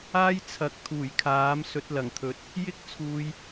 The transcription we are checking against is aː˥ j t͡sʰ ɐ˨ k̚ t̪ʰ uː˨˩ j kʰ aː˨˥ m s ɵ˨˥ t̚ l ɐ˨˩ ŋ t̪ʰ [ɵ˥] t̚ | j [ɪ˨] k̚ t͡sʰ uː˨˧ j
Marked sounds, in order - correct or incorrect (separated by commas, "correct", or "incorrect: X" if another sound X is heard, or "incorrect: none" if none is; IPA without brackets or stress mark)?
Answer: incorrect: ɵ˨˥, incorrect: ɪ˥